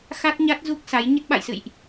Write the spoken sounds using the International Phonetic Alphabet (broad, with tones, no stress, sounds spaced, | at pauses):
x a˦˥ t̚ ɲ a˦˥ t̚ z u˦˥ k̚ s a˨˦ j ɲ ə˦˥ t̚ ɓ a̰˧˨ j s ɨ̰˧˨ j ʔ